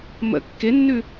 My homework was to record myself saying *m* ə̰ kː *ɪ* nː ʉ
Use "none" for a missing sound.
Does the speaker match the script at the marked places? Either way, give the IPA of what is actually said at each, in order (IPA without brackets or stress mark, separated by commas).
m, ɪ